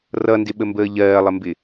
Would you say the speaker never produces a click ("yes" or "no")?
yes